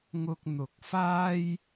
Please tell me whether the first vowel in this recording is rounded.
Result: yes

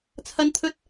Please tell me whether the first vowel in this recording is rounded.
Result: no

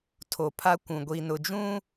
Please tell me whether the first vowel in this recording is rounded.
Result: yes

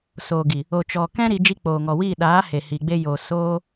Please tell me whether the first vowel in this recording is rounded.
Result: yes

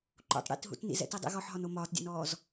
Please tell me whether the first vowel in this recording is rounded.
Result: yes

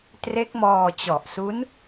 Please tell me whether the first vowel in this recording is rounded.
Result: no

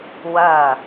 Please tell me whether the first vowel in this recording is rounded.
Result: no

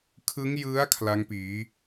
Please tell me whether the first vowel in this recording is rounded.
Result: no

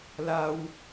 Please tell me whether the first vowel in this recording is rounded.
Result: no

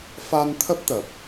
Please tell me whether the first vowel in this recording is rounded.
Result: no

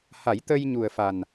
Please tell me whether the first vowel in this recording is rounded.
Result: no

